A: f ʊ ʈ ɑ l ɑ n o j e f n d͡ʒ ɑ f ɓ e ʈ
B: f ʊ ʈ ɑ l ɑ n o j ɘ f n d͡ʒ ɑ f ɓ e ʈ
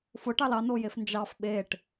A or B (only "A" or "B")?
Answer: A